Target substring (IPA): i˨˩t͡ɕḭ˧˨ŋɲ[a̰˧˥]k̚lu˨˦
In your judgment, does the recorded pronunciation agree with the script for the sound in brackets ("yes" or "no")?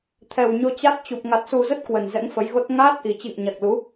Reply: no